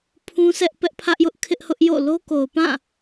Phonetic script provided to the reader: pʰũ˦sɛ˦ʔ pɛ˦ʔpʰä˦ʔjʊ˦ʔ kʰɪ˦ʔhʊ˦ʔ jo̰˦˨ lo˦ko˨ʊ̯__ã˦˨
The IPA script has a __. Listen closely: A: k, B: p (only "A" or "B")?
B